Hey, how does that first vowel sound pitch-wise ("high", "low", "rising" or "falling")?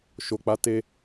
low